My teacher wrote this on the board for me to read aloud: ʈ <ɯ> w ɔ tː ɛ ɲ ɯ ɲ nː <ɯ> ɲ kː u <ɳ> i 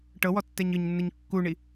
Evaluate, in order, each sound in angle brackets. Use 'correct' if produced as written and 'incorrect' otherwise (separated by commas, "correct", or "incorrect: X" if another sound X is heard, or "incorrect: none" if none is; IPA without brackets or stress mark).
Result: incorrect: ɤ, correct, correct